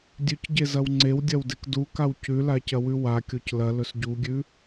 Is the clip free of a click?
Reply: no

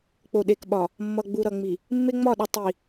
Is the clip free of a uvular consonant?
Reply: yes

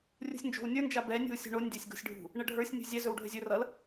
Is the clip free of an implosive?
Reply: yes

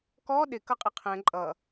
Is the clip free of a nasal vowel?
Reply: no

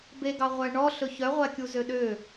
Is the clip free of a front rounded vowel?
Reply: no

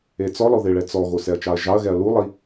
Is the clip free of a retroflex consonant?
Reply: no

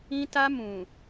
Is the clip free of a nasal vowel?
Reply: no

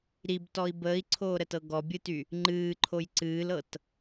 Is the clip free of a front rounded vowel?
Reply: no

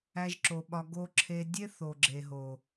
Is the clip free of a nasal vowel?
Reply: yes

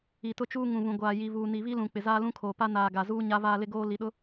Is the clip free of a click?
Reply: yes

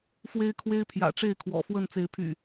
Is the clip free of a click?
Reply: yes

